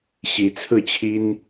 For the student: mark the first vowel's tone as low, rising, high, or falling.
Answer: rising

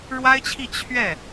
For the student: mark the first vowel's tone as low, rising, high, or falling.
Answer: high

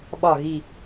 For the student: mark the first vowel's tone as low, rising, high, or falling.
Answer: low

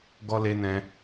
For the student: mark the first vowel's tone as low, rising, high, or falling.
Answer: high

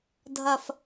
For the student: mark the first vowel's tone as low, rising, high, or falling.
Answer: low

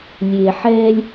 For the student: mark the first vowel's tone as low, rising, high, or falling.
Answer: low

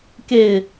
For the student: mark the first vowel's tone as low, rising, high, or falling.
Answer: falling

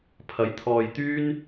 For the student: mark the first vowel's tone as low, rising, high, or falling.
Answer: rising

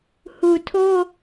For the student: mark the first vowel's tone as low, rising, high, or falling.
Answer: low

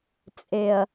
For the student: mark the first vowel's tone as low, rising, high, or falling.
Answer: low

